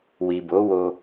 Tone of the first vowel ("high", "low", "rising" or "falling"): low